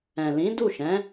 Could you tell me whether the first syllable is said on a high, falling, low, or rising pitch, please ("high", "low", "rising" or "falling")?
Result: low